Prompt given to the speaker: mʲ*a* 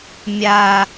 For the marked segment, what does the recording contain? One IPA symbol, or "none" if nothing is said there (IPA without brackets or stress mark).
a